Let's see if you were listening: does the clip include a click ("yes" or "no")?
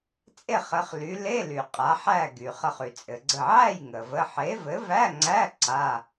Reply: yes